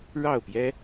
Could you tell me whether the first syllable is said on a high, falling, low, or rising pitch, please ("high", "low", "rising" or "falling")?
falling